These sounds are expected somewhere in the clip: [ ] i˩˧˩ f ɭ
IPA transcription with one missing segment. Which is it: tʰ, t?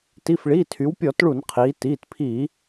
t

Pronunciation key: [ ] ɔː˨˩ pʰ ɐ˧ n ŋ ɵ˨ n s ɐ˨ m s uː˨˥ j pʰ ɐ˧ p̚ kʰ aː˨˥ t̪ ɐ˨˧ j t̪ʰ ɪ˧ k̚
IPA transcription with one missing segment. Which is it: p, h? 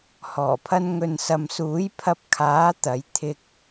h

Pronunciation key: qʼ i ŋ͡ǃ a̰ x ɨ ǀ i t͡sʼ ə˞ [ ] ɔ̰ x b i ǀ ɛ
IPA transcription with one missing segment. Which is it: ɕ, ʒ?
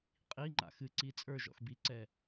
ʒ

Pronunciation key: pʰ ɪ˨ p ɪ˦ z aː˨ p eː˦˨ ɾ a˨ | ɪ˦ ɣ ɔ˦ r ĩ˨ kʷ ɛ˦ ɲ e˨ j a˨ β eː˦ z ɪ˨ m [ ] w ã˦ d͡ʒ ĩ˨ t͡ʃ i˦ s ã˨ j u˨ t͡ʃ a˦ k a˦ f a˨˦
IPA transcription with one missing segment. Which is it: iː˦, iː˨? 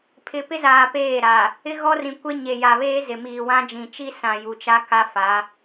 iː˨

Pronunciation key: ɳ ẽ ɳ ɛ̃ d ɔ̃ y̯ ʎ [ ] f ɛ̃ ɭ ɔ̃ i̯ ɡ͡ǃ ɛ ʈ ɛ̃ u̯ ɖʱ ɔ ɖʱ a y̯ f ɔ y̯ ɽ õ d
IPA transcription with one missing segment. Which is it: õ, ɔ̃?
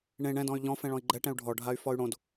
ɔ̃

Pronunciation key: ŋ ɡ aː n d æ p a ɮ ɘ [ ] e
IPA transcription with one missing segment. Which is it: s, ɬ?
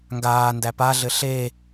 ɬ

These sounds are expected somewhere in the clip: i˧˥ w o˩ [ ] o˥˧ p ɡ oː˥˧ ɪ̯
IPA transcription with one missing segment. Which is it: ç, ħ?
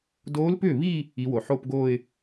ħ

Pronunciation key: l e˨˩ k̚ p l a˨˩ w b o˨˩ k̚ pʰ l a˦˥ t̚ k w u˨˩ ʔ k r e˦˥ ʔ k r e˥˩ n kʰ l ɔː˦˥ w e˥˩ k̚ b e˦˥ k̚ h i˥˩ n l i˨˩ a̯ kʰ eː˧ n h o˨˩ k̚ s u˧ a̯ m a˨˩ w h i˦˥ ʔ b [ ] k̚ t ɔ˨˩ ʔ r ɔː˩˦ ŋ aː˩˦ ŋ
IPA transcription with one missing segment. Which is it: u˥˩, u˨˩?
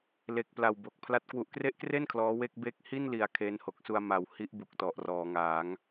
u˨˩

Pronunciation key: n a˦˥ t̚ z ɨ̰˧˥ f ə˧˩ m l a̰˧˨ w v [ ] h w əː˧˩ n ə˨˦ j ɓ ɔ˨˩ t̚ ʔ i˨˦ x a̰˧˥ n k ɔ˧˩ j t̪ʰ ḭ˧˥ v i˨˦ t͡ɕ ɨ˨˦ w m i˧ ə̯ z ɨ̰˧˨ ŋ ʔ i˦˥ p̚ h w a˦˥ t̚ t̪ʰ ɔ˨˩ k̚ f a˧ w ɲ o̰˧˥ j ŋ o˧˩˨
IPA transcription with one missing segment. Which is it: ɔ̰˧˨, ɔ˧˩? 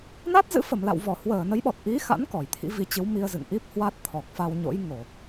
ɔ˧˩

